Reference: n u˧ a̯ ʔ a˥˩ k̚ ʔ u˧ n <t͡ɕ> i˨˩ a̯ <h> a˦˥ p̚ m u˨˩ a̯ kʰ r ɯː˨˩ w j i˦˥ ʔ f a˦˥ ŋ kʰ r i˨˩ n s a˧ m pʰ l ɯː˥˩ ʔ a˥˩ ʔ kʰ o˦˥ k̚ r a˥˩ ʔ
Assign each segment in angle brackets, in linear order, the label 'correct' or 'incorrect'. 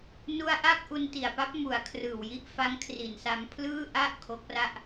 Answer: incorrect: t, incorrect: p

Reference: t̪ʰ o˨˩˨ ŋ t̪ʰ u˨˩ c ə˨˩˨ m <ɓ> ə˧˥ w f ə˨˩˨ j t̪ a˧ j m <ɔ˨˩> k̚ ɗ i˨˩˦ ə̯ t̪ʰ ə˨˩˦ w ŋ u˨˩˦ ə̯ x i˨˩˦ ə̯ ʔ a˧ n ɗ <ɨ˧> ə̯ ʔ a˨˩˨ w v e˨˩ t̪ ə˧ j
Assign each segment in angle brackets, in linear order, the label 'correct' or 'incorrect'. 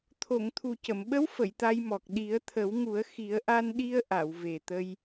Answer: correct, correct, incorrect: i˧

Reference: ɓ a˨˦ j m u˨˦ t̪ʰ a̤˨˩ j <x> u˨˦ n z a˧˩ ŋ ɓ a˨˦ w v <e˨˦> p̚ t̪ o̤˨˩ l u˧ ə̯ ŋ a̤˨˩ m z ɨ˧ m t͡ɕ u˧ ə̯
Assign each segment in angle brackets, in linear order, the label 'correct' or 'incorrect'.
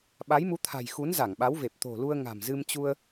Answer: correct, incorrect: e˨˩

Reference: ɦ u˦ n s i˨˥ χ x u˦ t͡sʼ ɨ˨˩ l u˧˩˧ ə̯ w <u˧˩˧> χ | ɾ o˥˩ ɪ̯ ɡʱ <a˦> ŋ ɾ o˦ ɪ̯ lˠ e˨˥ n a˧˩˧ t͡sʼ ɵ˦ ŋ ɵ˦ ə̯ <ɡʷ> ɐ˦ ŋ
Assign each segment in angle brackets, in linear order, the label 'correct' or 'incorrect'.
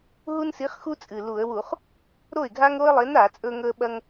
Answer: correct, correct, incorrect: ɓ

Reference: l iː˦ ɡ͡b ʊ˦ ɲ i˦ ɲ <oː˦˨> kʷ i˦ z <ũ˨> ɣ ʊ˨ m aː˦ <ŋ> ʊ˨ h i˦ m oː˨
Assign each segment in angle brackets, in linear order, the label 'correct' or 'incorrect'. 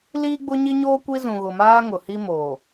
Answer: incorrect: oː˦, correct, correct

